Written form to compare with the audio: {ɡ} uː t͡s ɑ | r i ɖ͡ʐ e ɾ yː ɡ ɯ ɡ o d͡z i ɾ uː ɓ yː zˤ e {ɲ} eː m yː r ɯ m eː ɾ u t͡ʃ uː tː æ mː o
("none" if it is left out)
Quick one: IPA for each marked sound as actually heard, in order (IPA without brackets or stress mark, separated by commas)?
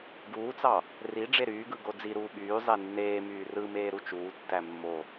ɡ, nː